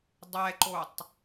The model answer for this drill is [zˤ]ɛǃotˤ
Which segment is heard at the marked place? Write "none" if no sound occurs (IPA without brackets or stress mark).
dˤ